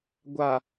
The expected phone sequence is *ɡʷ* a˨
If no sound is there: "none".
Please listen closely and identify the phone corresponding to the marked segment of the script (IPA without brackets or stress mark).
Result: ɡʷ